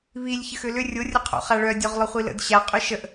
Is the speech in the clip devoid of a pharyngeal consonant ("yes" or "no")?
yes